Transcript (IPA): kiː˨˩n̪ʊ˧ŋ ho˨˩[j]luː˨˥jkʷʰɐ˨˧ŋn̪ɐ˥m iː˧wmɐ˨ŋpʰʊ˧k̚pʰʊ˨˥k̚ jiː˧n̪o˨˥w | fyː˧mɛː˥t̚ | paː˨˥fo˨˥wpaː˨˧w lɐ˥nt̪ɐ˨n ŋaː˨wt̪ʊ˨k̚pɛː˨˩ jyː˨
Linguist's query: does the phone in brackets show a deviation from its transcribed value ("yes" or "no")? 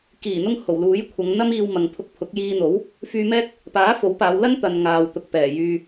yes